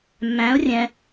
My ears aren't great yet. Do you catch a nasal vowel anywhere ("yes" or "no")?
yes